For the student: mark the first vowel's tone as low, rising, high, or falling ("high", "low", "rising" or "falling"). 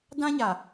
high